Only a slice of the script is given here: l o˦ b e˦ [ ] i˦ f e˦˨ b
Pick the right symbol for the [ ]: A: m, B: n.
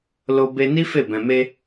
B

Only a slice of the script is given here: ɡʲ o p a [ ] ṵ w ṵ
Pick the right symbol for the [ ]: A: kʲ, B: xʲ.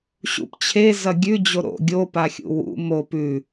B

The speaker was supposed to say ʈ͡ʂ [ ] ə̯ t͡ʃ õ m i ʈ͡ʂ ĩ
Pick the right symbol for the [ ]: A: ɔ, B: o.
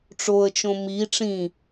B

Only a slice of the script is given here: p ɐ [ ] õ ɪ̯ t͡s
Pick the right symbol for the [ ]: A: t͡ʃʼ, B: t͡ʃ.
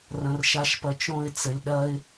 B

